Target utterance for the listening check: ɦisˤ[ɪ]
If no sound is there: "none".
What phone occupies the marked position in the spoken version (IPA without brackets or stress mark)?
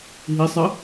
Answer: ɪ